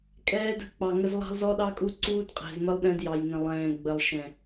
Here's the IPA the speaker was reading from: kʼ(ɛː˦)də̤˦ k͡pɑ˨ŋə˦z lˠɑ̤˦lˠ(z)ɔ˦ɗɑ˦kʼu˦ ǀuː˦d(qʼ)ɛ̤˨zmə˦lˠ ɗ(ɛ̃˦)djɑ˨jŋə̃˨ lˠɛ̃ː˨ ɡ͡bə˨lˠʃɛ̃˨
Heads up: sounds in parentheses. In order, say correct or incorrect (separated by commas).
correct, correct, correct, correct